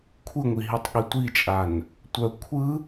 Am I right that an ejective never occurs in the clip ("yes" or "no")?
no